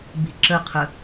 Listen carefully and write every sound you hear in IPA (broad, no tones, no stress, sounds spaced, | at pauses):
b i̤ ǁ ə qʰ ə